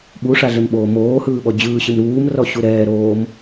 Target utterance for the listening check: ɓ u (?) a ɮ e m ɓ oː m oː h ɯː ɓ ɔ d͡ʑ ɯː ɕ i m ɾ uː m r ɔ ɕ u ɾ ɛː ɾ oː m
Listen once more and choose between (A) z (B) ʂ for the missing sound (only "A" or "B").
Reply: B